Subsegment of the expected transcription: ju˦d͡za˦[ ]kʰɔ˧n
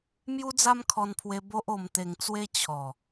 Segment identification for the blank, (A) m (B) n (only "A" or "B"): A